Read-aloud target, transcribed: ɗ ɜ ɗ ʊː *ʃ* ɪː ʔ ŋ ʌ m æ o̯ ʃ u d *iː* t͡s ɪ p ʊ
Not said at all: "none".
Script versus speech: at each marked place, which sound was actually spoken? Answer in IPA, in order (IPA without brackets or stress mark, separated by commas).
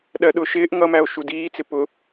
ʃ, iː